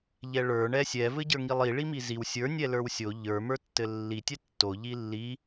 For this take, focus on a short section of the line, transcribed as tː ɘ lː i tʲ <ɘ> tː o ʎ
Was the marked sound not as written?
yes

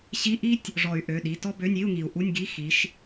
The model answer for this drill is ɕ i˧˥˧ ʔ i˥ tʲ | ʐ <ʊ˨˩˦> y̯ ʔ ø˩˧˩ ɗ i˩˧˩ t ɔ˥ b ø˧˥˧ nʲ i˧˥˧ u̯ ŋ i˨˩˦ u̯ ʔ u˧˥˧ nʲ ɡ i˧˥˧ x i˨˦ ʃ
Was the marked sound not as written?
yes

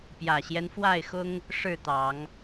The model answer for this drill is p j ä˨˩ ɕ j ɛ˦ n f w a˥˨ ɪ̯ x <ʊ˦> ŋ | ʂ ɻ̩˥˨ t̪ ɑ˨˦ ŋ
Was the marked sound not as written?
no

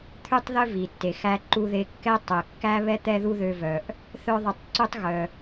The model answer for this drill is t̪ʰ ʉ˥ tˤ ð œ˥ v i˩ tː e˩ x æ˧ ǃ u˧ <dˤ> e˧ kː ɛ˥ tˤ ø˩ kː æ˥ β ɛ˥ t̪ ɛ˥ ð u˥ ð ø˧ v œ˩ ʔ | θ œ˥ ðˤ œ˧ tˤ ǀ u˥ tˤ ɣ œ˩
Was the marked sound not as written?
yes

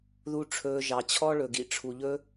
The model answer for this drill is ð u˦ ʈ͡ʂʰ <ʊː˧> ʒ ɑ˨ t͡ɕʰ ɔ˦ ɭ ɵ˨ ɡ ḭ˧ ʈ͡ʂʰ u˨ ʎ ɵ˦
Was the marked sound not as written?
yes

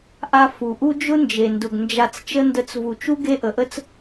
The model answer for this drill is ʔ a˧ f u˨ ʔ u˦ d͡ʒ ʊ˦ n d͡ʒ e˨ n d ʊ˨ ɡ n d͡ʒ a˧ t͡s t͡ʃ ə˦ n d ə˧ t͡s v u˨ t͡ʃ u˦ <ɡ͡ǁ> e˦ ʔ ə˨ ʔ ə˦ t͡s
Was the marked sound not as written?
yes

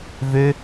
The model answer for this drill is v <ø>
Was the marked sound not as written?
no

